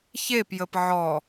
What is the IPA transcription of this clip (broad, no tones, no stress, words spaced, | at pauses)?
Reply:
çepjəp ʕɔ